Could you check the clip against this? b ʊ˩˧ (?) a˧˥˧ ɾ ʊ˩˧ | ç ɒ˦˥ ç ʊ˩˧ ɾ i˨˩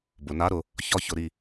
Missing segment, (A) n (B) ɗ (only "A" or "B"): A